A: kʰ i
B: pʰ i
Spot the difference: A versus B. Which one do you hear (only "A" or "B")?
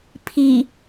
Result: B